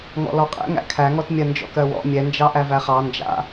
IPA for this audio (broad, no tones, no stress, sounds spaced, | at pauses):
ŋ ɔ̰ l ɔ qʼ ɛ̰ ŋ æ̰ kʰ æ ŋ ɔ t mʲ ɜ n d͡ʒ ɔ̰ k ɜ w ɔ̰ mʲ ɛ n d͡ʒ ɑ ʔ æ v æ χ ɑ n d͡ʒ a̰